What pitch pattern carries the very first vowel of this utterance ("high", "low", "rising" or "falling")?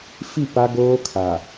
falling